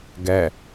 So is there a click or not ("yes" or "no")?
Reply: no